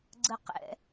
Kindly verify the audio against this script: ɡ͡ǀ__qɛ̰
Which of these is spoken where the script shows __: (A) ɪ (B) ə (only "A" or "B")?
B